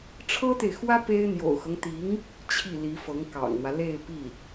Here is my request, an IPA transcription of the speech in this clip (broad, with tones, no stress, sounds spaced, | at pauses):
ʈ͡ʂʰ ɤ˥ t̪ e˨ ɪ̯ x w ä˥ p e˥ ɪ̯ n̪ j o̰˨˩ ʊ̯ x ɤ˦ ŋ t̪ i˧˥ ŋ | t͡ɕʰ i˥˩ l i˧˥ f ɤ˧˥ ŋ k ɑ̰˨˩ ŋ n̪ w ä˦ l e˥˧ ɪ̯ p i˥˩